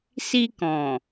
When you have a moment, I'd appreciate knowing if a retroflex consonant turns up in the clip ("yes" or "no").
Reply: no